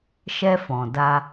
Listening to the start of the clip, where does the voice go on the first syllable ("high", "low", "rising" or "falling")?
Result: high